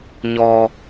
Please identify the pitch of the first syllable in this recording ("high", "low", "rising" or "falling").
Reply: low